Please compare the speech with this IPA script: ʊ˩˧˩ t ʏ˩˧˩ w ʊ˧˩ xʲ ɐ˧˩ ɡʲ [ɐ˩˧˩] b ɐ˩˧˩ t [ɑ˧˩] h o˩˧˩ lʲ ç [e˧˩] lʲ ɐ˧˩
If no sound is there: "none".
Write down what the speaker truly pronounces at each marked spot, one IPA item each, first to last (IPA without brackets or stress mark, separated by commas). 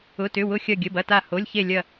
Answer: ə˩˧˩, a˧˩, e˧˩